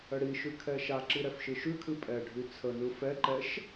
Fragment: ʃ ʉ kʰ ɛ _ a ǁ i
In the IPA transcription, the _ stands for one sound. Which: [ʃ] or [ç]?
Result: ʃ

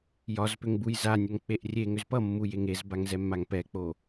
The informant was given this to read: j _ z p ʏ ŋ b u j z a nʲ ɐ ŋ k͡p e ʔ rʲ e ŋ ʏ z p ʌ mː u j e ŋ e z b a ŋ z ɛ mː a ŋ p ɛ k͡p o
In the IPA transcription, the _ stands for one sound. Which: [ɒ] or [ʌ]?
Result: ɒ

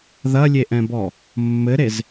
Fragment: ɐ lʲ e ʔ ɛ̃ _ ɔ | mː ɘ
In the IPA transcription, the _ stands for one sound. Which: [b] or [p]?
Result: b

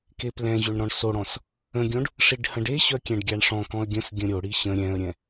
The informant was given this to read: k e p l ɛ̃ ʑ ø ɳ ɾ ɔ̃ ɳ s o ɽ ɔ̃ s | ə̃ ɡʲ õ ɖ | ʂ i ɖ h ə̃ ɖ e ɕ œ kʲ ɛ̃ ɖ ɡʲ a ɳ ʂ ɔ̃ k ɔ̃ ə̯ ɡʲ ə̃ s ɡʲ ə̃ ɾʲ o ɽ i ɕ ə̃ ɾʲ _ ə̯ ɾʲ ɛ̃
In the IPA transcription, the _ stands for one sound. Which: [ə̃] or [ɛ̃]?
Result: ɛ̃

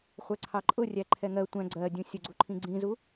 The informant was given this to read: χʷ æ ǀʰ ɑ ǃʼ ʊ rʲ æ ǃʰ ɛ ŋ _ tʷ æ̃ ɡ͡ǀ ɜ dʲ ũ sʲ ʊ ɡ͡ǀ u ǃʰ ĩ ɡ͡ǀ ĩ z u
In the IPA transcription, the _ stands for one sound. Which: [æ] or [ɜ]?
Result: ɜ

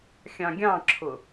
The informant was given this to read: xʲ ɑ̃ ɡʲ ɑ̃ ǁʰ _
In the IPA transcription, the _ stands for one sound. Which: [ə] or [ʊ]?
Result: ʊ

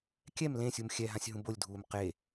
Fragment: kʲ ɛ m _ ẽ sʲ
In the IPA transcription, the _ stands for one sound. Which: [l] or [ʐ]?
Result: l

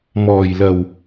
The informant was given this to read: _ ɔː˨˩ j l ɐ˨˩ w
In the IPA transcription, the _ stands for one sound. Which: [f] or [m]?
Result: m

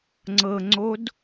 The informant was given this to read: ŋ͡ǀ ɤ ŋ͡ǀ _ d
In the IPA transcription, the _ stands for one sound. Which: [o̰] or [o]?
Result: o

